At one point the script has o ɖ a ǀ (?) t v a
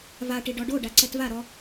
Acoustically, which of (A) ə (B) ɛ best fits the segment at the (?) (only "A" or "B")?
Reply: B